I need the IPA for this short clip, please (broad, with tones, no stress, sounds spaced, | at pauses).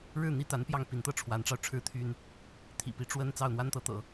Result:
ɻ ɻ̩˥˩ n̪ i˥ t̪ a˧˥ n p j ɑ˥˩ ŋ p i˧˥ n t̪ ɤ˥˩ ʈ͡ʂʰ w a˧˥ n ʈ͡ʂ ɑ˧ ʊ̯ ʈ͡ʂʰ ɻ̩˥ t̪ʰ y˥ n | t̪ʰ ḭ˨˩ p i˧˥ ʈ͡ʂ w ə˥ n t͡s ɑ˥˩ ʊ̯ n̪ w a˥ n t̪ ɤ˧˥ t̪ ɤ̰˨˩˦